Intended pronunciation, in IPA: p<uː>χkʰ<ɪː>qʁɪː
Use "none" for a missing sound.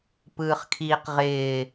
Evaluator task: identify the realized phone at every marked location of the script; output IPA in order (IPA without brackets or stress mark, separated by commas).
ɯː, iː